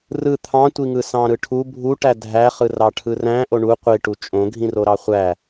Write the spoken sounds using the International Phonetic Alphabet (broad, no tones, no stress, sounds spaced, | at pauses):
r ɯ t̪ʰ ɑ̃ tʷ i ŋ ɯ s ɑ̃ ɾ ɯ ʈʰ u bʱ u ʈ æ dʱ æ χ ɯ r ɑ ʈʰ ɯ r æ̃ ʔ o ɳ u qʷ i ʈ u t͡ʃʼ õ ɡʱ ĩ r o ɾ ɑ χʷ æ